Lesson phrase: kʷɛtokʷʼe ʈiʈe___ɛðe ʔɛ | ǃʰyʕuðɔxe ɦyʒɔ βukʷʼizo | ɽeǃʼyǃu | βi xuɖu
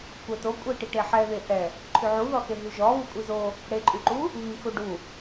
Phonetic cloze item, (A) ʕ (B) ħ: B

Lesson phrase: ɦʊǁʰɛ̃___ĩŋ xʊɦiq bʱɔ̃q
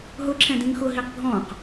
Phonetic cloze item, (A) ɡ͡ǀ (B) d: B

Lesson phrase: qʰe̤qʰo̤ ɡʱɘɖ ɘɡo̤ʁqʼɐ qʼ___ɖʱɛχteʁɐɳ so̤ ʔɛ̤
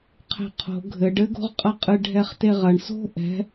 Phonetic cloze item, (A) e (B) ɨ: B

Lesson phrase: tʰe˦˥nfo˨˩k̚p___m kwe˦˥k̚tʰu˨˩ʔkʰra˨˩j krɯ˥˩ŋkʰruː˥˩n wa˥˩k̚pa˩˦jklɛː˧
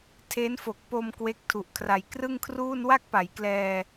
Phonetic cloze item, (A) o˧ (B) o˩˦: A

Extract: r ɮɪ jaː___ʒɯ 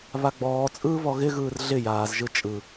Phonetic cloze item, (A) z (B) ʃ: A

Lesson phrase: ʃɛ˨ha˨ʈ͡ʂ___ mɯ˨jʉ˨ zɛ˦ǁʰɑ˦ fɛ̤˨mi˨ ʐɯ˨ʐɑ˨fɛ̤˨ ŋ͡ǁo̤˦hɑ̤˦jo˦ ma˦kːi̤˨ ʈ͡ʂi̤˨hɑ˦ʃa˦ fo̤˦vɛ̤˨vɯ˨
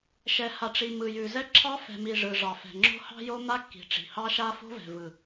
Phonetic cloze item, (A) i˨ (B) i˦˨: A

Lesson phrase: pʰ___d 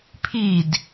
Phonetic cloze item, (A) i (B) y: A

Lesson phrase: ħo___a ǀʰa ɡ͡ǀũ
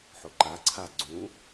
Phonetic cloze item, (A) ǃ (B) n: A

